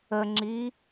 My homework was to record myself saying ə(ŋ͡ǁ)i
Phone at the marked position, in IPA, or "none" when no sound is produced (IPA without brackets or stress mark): ŋ͡ǁ